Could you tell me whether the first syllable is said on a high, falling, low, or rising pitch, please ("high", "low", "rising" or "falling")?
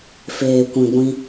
low